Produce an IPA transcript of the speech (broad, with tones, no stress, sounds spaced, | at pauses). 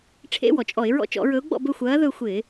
ʈ͡ʂʰ ḛ˧˥˧ w ɔ˩ t͡ʃʼ ɔ˧˩˧ ɪ̯ ɹ ɔ̰˦˨ t͡ʃ ɔ̰˧˩˧ ɹ ɵ˨˦ ʊ̯ ɡ͡b ɔ̰˦˨ b ɵ˦˨ xʷ ɐː˨˦ ð ɵ˦˨ xʷ ɪː˧˩˧